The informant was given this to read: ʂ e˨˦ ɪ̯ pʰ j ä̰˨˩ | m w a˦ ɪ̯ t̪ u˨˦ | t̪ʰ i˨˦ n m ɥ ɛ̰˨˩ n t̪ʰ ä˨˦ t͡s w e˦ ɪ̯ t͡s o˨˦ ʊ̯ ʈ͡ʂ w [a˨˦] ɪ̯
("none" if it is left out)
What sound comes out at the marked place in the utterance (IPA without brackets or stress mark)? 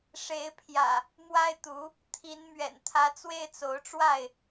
a˥˨